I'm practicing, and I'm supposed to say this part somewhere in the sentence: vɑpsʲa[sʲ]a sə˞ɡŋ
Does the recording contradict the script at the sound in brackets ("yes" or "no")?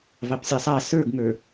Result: yes